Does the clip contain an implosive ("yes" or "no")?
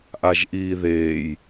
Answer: no